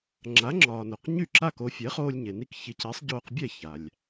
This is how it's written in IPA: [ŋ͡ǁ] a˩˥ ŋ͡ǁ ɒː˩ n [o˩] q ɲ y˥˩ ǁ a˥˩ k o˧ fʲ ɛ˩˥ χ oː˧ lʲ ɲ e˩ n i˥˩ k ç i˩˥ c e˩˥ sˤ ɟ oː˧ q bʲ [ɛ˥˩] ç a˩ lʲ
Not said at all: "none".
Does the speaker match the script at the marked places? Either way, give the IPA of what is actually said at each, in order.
ŋ͡ǁ, o˩, ɛ˥˩

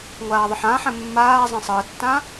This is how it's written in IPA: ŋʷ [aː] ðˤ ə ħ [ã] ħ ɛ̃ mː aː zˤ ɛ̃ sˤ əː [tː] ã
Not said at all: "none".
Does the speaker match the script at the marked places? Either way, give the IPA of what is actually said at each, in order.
aː, ã, tː

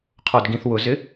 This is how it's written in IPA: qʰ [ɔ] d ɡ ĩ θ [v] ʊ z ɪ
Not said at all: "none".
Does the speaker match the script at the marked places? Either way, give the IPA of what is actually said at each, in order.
ɔ, w

